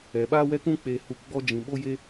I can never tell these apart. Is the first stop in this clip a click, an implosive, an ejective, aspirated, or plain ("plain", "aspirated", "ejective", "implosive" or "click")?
implosive